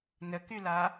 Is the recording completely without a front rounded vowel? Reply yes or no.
no